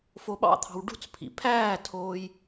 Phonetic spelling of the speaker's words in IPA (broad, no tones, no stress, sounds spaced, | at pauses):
f o ɓ ɑ̰ t̪ʰ ɑ̤ w ɖ ṳ t͡s pʰ ḭ pʰ æː tʰ oː j